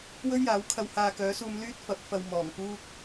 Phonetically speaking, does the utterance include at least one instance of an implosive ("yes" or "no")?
no